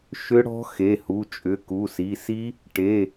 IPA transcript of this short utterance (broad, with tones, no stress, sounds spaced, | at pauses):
ʃ ʏ˦˥ ɽ ɔ̤˦˥ x e˩˧˩ h u˩˧˩ t͡ʃʼ ʏ˩˧˩ k u˩˧˩ s i˩˧˩ s i˦˥ | ʈ e˩˧˩